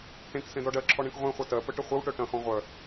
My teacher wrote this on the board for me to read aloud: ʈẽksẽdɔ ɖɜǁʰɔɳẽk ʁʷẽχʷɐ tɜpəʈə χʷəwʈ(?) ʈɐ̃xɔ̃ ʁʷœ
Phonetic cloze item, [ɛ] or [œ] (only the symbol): œ